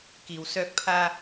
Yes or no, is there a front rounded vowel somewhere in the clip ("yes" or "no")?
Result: yes